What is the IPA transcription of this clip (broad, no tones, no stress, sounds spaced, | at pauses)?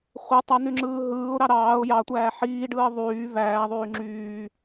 χʷ e tˤ æ n̪ y ŋ͡ǁ ɯː ɦ ɯː ʊ̯ ɾ ɑ ɾ ɑː ʊ̯ j ɑ tʷ æː ħ iː ɖ ɯː ə̯ ðˤ yː v æː ðˤ yː ŋ͡ǁ yː